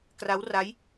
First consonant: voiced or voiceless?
voiceless